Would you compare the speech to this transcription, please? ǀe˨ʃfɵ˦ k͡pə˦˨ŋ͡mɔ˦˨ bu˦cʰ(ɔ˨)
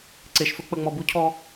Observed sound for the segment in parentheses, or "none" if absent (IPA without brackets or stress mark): ɔ˦